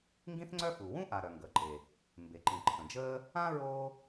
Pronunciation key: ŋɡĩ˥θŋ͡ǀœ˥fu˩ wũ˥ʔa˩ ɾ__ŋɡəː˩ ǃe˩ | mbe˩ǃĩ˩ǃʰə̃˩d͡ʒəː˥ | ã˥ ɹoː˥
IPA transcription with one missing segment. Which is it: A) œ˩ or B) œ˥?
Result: A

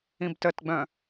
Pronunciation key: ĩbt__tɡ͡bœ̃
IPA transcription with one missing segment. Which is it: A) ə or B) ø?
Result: A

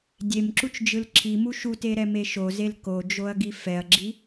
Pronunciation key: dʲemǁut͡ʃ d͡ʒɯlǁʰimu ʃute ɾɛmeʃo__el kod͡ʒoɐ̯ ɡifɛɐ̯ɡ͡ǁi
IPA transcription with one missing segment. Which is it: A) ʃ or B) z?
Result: B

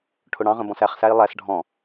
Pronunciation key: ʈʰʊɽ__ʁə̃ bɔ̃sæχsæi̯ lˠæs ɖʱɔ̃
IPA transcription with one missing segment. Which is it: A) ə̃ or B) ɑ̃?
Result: B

